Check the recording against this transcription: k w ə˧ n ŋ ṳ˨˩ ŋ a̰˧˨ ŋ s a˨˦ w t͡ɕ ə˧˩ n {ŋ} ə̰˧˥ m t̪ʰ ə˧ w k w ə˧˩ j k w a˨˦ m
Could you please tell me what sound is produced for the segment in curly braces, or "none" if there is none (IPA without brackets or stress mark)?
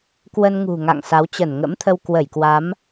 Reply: ŋ